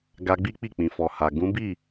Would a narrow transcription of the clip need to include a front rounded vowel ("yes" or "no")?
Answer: no